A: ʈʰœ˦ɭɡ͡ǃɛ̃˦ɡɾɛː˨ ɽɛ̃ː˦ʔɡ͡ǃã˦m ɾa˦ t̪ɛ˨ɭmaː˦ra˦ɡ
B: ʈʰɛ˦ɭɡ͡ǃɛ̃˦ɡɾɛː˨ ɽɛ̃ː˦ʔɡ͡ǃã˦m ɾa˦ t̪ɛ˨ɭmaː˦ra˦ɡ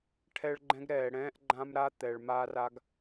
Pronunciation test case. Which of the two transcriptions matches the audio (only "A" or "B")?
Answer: B